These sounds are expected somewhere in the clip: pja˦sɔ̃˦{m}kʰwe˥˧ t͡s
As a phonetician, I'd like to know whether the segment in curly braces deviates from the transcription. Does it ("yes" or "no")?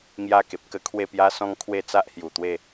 yes